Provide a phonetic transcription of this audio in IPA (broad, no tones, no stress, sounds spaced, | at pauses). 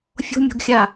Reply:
fʲ o̤ mʲ o̤ ɡ xʲ a